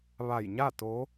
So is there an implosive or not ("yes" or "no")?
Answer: no